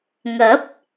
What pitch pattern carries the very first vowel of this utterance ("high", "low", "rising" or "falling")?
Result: rising